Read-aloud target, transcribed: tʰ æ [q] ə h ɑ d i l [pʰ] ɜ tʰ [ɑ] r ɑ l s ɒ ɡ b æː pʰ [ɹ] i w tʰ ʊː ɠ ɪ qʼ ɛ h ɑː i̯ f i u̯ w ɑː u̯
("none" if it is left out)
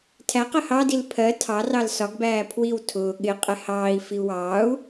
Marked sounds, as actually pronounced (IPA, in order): q, pʰ, ɑ, w

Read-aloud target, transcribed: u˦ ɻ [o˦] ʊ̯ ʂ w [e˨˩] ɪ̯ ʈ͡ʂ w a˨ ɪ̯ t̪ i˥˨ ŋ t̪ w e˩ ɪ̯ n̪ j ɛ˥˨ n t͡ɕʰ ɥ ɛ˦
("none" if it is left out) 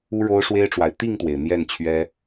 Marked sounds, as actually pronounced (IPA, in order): o˦, e˦

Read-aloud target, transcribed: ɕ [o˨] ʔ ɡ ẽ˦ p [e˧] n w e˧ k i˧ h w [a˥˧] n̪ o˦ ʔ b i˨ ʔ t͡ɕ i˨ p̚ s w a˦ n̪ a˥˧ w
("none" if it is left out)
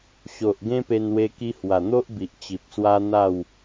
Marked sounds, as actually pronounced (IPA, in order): o˨, e˧, a˨˩

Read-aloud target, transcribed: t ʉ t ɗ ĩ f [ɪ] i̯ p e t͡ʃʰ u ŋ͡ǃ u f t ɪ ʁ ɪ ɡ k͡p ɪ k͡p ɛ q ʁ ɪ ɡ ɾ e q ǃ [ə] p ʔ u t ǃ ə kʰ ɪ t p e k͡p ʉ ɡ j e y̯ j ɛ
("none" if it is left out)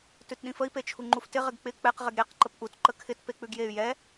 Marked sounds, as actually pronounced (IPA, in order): ə, ə

